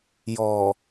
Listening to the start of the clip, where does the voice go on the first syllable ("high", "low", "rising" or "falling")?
low